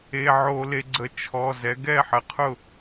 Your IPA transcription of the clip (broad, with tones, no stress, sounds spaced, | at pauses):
e˩˧˩ ʕ o˧˩˧ l e˩˧ ɡ͡ǀ ə˩˧ t͡ʃʰ ɔ˩˧˩ z ɛ˩˧ ɡ ɛ˥˩ ħ ə˩˧ qʰ ʊ˥˩